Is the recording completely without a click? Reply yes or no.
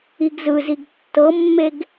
yes